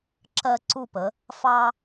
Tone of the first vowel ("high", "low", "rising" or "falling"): high